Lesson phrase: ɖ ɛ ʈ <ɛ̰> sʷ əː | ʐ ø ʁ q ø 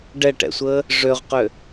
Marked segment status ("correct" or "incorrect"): correct